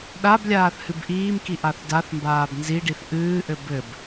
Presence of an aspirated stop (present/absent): absent